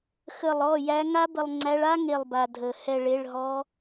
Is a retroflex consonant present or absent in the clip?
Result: present